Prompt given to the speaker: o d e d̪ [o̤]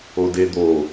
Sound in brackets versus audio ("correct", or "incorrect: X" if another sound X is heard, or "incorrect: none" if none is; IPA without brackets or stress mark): incorrect: o